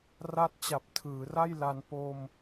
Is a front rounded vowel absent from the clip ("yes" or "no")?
yes